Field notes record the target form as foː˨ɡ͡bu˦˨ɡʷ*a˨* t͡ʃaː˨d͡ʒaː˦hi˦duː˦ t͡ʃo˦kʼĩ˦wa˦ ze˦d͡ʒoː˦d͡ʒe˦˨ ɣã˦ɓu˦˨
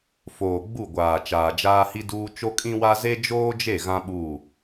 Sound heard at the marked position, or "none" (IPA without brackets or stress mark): aː˨